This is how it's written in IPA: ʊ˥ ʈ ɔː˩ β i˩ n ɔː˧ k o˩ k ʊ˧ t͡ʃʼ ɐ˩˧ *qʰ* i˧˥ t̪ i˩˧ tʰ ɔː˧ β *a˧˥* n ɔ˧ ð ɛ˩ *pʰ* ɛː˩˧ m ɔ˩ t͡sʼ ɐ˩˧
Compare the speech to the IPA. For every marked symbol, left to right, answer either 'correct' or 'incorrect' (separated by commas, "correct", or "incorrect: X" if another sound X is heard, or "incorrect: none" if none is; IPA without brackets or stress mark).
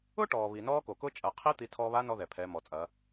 correct, correct, correct